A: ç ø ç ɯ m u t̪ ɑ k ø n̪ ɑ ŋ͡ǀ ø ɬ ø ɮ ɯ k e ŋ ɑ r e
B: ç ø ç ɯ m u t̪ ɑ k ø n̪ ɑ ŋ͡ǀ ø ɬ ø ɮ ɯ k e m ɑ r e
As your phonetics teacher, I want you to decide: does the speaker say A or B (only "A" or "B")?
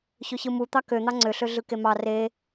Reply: B